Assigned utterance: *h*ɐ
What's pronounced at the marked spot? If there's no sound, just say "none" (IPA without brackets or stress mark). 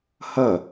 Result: h